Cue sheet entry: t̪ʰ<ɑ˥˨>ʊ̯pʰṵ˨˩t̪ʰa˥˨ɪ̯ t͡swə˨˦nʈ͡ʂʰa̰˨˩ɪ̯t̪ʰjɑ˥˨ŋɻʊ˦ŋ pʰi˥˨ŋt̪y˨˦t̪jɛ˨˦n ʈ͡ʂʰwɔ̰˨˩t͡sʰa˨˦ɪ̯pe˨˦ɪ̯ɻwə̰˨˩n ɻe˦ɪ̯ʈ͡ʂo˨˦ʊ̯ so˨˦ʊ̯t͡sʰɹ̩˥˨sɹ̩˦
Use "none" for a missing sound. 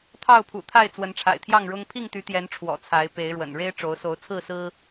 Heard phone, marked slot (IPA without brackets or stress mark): ɑ˥˨